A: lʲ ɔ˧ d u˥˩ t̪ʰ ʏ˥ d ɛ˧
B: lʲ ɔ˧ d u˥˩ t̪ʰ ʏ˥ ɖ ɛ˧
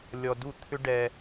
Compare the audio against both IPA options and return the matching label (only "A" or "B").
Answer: B